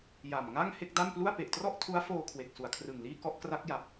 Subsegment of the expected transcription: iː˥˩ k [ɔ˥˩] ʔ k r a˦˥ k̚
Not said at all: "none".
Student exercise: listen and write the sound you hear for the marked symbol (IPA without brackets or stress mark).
ɔ˥˩